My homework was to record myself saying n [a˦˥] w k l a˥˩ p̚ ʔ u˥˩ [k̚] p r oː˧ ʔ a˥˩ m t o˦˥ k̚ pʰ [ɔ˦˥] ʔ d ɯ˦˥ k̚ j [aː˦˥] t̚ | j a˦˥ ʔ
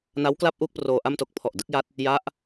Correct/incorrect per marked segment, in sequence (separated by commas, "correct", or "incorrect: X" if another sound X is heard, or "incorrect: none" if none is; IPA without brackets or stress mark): correct, correct, incorrect: ɔ˨˩, incorrect: a˦˥